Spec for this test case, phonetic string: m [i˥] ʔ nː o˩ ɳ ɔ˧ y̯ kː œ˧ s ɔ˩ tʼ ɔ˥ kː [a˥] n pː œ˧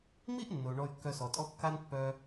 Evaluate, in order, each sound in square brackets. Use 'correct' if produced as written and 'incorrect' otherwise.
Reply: correct, correct

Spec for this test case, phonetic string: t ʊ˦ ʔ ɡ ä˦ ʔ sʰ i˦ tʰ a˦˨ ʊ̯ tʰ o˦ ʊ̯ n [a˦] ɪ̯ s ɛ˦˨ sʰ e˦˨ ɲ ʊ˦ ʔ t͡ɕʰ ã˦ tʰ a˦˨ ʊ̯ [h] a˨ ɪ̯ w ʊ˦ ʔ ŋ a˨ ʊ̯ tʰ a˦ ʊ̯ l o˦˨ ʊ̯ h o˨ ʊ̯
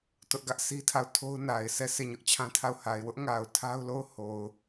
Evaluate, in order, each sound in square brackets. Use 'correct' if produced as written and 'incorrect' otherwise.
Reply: incorrect, correct

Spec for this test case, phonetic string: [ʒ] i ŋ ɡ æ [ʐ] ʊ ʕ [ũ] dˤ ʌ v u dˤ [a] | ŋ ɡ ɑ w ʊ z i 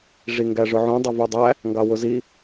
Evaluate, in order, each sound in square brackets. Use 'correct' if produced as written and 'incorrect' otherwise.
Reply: incorrect, correct, correct, incorrect

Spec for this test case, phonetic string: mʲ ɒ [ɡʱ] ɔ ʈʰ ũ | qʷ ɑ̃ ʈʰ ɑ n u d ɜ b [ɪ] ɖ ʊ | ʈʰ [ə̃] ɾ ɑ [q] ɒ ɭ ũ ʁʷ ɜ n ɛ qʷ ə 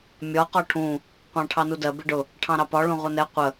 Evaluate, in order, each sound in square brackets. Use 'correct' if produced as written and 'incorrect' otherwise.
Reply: incorrect, correct, incorrect, incorrect

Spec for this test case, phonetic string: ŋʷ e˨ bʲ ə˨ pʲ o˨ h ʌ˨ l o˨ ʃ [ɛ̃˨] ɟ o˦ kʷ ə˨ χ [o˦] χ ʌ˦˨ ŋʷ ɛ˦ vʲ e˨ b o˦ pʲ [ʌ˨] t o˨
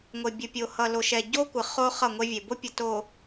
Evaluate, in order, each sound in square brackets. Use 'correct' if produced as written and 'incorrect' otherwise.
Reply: incorrect, correct, correct

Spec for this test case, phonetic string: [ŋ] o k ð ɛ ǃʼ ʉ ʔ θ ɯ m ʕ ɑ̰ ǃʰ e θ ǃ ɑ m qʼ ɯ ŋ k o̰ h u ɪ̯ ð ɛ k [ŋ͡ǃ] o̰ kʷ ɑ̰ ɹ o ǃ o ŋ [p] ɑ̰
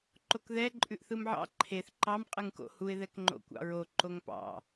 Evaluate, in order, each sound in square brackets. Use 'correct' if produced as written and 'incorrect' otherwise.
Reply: incorrect, correct, correct

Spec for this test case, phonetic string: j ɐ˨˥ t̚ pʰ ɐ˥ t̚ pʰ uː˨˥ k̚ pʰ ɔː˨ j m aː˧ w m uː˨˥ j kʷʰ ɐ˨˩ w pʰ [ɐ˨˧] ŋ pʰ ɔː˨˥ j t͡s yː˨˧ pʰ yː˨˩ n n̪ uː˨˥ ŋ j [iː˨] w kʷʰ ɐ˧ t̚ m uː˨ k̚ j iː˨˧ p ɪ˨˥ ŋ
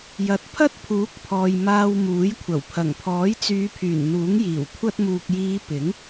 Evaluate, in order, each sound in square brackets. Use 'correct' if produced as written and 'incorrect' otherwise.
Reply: incorrect, incorrect

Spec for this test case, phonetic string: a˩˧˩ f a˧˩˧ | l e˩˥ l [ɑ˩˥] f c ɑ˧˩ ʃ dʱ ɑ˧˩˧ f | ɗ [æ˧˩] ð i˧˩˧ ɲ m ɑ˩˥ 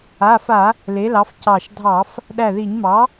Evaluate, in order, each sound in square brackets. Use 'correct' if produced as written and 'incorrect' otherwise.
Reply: correct, correct

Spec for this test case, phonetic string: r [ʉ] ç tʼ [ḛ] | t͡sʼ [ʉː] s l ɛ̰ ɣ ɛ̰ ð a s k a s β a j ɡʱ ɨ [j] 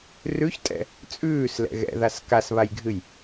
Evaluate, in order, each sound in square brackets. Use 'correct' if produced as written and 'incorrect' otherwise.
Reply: correct, incorrect, correct, correct

